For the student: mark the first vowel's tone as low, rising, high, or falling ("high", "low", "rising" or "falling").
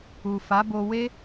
low